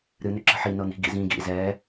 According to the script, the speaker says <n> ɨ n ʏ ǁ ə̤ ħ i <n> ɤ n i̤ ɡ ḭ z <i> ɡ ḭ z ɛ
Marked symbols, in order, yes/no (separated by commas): no, yes, no